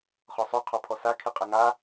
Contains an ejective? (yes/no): yes